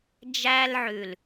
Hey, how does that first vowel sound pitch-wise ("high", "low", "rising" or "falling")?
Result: high